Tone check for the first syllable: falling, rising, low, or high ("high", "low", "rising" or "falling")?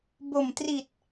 low